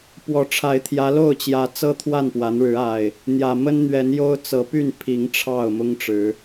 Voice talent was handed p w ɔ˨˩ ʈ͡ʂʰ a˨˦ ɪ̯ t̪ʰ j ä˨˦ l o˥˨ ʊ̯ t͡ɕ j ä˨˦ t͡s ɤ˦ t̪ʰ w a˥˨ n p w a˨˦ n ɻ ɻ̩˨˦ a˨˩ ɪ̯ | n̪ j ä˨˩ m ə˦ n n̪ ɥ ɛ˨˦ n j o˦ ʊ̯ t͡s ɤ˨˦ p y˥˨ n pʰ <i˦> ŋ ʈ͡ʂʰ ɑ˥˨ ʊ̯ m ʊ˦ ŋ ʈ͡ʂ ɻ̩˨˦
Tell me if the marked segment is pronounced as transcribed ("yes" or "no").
no